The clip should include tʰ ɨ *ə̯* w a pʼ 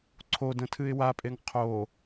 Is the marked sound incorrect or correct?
incorrect: ɪ̯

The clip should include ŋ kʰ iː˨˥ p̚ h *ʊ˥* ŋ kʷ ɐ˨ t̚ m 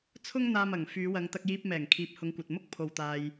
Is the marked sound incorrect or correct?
incorrect: ʊ˨˧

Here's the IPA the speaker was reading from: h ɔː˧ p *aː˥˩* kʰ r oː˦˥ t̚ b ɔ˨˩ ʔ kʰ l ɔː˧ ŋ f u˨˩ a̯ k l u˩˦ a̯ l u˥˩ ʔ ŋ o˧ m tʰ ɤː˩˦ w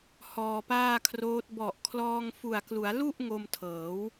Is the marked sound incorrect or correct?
correct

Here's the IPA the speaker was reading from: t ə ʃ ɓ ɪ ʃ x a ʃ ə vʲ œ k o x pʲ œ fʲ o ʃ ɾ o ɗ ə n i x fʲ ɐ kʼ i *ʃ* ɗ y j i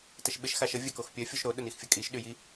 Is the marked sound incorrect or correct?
correct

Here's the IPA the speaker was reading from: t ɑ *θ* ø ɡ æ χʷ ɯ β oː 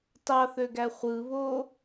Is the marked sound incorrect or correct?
correct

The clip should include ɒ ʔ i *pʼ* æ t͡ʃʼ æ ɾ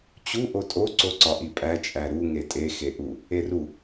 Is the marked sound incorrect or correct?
correct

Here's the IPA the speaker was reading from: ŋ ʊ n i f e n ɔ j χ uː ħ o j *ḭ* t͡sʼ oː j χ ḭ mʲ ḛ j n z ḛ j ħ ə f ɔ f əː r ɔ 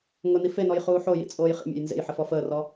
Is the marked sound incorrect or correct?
correct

